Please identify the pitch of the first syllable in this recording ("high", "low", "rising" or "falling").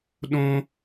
high